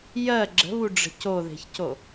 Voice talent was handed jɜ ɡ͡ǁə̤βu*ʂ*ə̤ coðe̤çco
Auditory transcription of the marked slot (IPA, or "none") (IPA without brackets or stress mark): ɖ͡ʐ